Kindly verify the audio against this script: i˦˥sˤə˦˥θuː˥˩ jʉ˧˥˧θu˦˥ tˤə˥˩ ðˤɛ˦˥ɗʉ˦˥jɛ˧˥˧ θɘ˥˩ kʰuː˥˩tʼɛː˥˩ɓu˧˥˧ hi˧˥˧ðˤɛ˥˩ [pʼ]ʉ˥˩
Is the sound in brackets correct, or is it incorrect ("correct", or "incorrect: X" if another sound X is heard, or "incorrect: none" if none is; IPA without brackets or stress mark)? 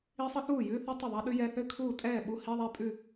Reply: correct